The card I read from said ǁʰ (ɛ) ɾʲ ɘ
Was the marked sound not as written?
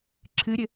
yes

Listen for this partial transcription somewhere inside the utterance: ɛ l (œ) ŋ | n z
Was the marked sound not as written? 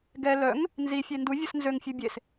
no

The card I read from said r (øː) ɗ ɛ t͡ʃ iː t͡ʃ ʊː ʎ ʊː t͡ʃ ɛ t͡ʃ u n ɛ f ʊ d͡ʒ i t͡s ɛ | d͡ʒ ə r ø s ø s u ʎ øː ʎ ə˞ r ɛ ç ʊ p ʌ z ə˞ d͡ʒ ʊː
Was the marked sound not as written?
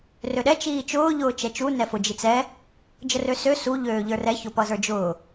yes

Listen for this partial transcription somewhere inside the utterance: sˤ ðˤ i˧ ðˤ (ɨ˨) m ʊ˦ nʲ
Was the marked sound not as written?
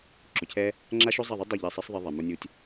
yes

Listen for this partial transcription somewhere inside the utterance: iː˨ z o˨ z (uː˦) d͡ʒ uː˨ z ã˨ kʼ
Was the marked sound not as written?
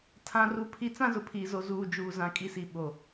yes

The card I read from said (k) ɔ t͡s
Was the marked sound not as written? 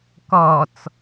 no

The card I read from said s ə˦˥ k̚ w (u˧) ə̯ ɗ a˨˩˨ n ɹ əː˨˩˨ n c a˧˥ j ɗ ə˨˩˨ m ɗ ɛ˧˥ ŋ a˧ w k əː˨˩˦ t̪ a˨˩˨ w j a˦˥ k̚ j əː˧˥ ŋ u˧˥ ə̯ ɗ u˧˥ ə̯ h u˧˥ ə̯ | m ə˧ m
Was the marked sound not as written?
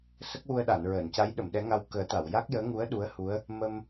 no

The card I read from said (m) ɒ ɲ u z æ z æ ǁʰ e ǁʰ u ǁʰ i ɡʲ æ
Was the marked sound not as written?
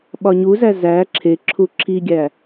yes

